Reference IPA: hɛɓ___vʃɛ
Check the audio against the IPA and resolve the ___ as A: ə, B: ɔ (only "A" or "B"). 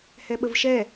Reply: A